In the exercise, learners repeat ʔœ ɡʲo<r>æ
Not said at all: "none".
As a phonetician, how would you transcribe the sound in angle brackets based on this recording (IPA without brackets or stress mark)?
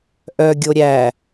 ɾʲ